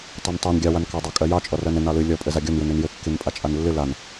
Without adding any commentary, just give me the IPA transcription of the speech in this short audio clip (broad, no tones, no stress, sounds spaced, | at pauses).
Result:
tˤ ɛ n tˤ ɛ n ɡʲ ɑ w a n k ɑ dˤ ɑ kʼ ɜ j ɑ t͡ʃʼ ɔ r ɜ n ɘ n ɑ l ɨ lʲ ɔ pʼ ɘ z a ɡʲ ɔ n j ɨ n ɨ n j ɘ kː i n pʼ a t͡ʃʼ a n lː ɨ l a n